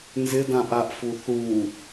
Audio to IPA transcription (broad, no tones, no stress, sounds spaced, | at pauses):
n z ɪ d ã ʔ a ʔ f u θ u